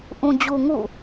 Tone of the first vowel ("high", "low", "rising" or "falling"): low